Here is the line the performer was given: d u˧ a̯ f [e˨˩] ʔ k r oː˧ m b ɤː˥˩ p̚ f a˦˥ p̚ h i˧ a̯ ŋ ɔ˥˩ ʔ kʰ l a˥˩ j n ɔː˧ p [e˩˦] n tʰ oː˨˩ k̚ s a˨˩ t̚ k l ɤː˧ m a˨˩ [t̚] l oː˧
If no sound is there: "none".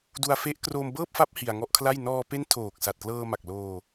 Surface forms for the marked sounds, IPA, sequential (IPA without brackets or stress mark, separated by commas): e˦˥, e˦˥, k̚